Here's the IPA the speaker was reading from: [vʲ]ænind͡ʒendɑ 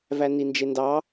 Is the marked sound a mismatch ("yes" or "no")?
yes